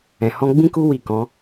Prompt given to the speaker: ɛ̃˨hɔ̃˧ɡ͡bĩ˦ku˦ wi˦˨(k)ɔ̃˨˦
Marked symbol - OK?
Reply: yes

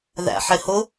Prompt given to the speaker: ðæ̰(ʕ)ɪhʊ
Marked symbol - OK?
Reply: no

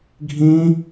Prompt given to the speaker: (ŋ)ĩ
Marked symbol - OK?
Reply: no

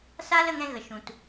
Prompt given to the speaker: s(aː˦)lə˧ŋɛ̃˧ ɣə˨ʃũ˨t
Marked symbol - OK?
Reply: yes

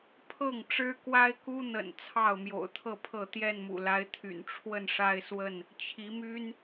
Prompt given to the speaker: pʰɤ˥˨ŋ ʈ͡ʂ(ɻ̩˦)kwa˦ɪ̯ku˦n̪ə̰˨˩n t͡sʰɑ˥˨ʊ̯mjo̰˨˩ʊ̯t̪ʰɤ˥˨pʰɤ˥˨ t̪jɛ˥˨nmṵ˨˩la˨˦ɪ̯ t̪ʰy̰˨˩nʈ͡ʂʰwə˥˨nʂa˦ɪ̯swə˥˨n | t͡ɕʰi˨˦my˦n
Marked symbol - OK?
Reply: yes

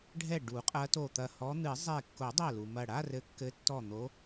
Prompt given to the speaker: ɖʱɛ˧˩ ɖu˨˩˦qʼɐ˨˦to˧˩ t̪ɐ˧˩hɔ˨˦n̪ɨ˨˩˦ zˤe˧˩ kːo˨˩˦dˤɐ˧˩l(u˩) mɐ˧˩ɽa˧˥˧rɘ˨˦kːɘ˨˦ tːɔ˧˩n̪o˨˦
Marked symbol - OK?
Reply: yes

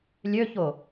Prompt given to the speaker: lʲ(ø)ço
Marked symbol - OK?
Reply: yes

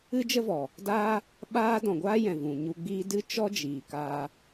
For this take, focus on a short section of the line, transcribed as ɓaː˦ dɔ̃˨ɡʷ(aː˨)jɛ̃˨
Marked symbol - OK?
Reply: no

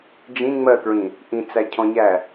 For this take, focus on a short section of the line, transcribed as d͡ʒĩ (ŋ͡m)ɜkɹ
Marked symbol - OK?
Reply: yes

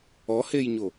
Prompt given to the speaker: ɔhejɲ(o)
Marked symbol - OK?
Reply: yes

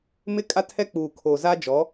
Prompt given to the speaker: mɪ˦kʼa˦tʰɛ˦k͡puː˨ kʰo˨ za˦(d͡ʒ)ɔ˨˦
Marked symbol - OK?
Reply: yes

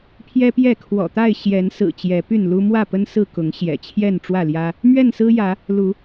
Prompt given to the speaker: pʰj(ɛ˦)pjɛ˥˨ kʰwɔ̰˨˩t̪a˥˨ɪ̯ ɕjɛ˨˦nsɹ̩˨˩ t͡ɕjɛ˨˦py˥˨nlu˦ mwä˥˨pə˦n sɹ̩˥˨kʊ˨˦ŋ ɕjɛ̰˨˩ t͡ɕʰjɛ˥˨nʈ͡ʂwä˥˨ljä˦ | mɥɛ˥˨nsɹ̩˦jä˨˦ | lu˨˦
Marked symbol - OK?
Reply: yes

